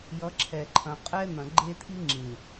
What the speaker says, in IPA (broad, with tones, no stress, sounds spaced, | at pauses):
j ʌ˨˦ ǁʰ ɛ˨ ǃʰ ɐ̃˨ qʼ ɛ˦ n̪ ɐ̃˨ ɡ͡ǃ e˦ t̪ʰ i˦ ŋ͡ǁ ĩ˨